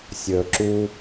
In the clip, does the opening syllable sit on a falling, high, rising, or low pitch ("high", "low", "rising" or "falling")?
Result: low